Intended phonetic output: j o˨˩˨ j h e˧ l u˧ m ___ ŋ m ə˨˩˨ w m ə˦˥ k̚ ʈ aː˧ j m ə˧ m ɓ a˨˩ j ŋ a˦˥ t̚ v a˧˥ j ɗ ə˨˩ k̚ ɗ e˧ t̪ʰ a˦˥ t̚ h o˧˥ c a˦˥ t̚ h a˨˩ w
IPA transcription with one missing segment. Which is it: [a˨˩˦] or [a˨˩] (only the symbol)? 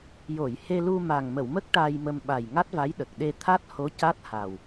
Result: a˨˩